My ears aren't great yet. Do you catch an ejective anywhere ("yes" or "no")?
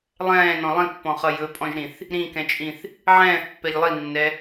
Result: yes